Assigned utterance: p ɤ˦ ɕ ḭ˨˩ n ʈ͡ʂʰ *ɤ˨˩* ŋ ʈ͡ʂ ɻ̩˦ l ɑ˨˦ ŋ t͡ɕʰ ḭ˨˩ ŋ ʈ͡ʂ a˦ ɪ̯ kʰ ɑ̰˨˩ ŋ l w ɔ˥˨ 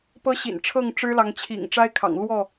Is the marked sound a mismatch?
yes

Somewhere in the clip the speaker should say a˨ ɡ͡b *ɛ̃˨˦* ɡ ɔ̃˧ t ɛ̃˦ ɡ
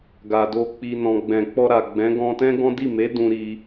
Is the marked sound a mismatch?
no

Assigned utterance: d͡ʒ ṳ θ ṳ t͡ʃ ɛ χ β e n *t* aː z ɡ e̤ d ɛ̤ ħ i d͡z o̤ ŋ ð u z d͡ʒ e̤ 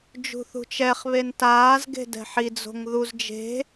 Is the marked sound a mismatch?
no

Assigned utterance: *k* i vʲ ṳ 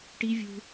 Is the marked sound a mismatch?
yes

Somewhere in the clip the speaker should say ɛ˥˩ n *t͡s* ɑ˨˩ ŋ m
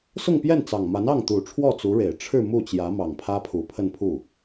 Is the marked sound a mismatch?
no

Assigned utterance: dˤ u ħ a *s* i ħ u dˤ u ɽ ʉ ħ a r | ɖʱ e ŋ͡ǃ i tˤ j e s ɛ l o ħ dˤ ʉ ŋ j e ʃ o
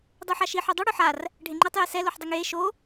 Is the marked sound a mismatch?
yes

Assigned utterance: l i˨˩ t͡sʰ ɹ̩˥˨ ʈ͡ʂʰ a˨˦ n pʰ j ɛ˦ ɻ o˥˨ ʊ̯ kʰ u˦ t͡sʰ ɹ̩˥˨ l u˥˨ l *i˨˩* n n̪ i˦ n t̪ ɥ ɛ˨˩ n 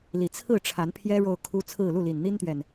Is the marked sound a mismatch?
no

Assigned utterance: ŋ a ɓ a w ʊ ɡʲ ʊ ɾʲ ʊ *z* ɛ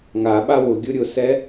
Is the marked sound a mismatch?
yes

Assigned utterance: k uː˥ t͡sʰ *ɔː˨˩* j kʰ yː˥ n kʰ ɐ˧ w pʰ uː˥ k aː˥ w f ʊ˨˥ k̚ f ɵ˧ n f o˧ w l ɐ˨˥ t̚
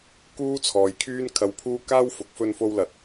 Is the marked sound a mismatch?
yes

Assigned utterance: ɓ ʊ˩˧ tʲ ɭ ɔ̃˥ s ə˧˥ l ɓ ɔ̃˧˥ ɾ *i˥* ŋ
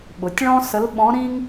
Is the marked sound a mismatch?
yes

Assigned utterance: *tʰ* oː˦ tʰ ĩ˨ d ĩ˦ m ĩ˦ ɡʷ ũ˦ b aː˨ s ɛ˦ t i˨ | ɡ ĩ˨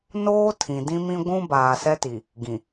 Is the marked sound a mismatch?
yes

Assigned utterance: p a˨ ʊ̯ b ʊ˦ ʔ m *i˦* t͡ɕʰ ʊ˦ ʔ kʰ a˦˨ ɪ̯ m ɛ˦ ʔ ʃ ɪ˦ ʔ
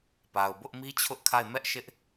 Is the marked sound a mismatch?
no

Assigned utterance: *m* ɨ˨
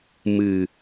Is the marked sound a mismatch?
no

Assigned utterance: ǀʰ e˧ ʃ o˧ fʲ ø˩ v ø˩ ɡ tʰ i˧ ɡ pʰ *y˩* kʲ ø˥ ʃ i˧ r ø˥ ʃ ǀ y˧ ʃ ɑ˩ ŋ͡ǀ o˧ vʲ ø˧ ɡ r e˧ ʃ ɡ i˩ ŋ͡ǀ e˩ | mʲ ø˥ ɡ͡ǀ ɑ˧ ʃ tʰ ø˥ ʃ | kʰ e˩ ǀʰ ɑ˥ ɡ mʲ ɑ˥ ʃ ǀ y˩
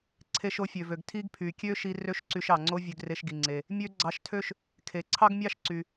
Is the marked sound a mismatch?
no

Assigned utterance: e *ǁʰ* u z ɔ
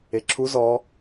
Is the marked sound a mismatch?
no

